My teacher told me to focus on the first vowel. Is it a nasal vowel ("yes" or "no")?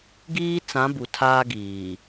no